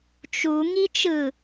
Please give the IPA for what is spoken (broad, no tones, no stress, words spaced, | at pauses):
t͡ʃu ŋit͡ʃɯ